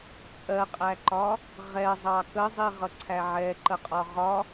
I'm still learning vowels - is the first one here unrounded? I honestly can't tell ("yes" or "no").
yes